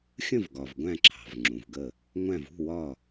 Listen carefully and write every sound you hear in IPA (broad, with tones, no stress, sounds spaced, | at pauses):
xʲ ə̃˥˩ v ɡ ɒ˩ v ɡʷ æ̃˧˩ ǁʰ ɑ̤˩ v ŋ͡ǁ ũ˩ v ɡ ə˧˩ | ŋʷ æ̃˧˩ v ṳ˥˩ w ɒ˧˩